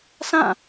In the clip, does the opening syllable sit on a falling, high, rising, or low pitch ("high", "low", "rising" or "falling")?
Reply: falling